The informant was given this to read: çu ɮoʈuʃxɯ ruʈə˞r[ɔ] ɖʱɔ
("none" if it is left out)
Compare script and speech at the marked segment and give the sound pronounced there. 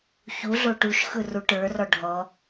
ɔ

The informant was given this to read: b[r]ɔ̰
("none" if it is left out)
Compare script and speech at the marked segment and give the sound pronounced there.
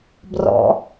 r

